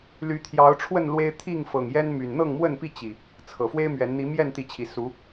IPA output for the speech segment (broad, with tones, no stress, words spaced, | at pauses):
ly˨˦ t̪ʰjɑ˨˦ʊ̯ʈ͡ʂʰwə˥˨n lwe˦ɪ̯ t̪ʰi˥˨ŋ fɤ˨˩ŋjɛ˦nmy˨˩n n̪ɤ˥˨ŋmwə˥˨npi˥˨ t͡ɕi˨˩ | t͡sʰɤ˨˩ fwe˦ɪ̯mɥɛ˨˦n n̪i˨˦mjɛ˥˨nt̪i˨˦t͡ɕʰi˨˩ su˨˦